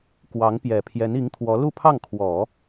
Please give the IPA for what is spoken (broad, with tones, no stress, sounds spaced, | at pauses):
k w ɑ˧˥ ŋ p j ɛ˨˩ pʰ j ɛ˧˥ n i˧˥ ŋ t̪ʰ w ɔ˧˥ l u˥˧ pʰ ɑ˥˩ ŋ kʰ w ɔ˨˩˦